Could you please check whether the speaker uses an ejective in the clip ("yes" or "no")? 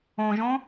no